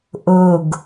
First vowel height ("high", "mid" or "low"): mid